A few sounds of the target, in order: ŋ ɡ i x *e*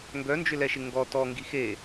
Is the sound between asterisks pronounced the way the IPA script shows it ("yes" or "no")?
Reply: yes